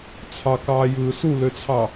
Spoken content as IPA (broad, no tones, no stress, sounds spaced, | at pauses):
t͡sʰ ɑ k ɑː j ɯː s u l ø t͡sʰ ɑ